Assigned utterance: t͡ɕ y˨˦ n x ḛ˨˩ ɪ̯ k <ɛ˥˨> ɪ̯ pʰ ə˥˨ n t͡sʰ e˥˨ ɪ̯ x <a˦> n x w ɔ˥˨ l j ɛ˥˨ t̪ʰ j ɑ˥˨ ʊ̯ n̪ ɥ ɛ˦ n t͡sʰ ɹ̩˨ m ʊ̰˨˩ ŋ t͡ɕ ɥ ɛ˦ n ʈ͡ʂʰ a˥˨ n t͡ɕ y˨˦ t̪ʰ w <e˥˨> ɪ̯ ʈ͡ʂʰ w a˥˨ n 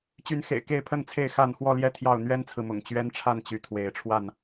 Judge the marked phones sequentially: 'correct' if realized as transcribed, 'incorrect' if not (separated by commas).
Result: incorrect, incorrect, incorrect